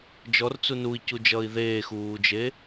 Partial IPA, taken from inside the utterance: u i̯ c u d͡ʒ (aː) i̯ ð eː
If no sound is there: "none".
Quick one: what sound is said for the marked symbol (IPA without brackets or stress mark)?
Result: ʌː